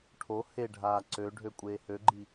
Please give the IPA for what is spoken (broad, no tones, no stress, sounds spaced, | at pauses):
ʈʰ o h e ɖʱ aː ǀ ø ɖʱ ø kʷʼ eː h ø ɡ͡ǃ i